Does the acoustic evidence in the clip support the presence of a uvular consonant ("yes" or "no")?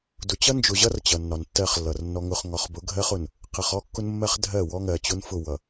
yes